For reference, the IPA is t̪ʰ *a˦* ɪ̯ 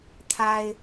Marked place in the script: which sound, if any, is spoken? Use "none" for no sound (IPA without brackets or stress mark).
a˦